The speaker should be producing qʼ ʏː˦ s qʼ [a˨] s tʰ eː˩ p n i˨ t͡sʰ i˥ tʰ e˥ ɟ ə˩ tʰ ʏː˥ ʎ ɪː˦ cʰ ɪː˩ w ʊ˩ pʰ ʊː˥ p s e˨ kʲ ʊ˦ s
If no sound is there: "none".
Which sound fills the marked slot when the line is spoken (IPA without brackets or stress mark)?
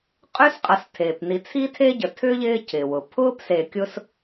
ɐ˨